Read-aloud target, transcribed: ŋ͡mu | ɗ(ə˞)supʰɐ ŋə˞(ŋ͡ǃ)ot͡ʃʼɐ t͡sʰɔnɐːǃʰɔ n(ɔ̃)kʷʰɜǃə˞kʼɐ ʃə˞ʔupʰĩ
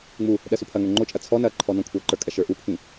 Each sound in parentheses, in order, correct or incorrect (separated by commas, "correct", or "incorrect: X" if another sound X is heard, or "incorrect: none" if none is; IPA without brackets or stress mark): incorrect: ɜ, correct, correct